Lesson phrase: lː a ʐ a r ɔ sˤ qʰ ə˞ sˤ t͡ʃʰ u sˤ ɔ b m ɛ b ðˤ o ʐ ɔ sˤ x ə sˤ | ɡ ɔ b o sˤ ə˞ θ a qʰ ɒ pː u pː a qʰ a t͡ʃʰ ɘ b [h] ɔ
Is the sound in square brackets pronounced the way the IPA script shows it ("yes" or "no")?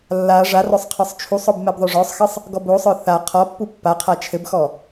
no